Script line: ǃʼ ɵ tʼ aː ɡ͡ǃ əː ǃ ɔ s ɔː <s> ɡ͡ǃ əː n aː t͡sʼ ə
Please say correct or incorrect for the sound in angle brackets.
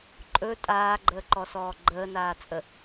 incorrect